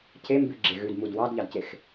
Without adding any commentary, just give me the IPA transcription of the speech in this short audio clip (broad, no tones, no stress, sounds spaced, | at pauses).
cʰ e m b ʉ ɡ͡ǁ e ɣ ʉ d m u d w ɑ d ʎ ɑ d c e x